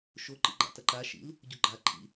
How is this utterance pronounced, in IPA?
ʃo ǃḭɡ͡ǃa̰tɐǃa ʃḭl | ɟuɡ͡ǃa ǃʰḭ

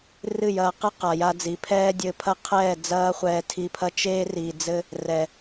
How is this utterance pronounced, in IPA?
rɨ˦˨jɐː˧qɨ˦ qa˨ja˧d͡zi˨˦ pʰɛː˦dʲɘ˧pʰɐ˦ qʰɛː˦˨ d͡zɐː˦χʷɛː˧tʰi˧pʰɐ˦ t͡ʃeː˦ri˨ d͡zɘ˦ | rɛ˨

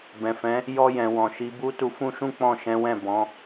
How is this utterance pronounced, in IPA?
bɛ̃˨fɛ̃˨˦ | jɔ˧jɛ̃˨wɔ̃˨ ʃi˨˦bu˦ tu˧fũ˦ʃũ˦ k͡pɔ̃˦˨ʃɛ̃˨˦wɛ̃˦˨ bɔ̃˨˦

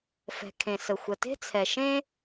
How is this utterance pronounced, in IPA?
fɛ̤˩ kʰẽ˩sə˩ xʷə˩te̤˥t͡sʰɛ˩ʃẽ˥

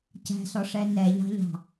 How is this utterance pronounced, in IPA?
cæ̤sɔʂɛ nɛʎɑ̤ʎɑ̤

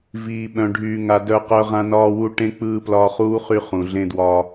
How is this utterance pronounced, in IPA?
viː˨ ɓœ̃˨ɖʱyː˨ŋa˨ dœ˦qœ˦ ʁã˦nɒː˦wu˦ ʈẽ˦ k͡pɯː˦plɒ˦ χuː˦ χy˦χũ˨ ɮẽ˦dwɒ˦

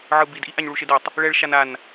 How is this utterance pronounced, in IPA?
ʕɯbidʔi ʔaɲɭuʃedɛtˤ | ɭɛɭʃan an

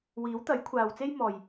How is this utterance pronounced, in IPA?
wiː˨˥wt̪ɐ˨˥jkʷʰaː˨wt͡se˥j mɔː˨j

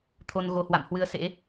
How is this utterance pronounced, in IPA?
t̪ʰo˧n ɣo˧hwa̰˧˨m hwɨ˧ə̯sḛ˧˥

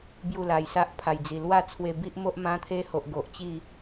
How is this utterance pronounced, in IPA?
bju˥˧la˧jsa˦ʔ pʰa˨˩jd͡zi˨˩lwa˥˧ t͡sʰwe˧bi˦ʔmo˦ʔ mã˦t̪ʰe˦ ho˨ʔ ɡo˨ʔt͡ɕi˥˧

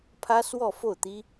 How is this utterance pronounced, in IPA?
pʰä˥swɔ˥˧fo˥˩ʊ̯t̪i˥

